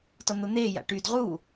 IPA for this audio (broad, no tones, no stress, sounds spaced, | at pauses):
t ɔ n̪ o n̪ eː j a̰ ʈ y d ʁ uː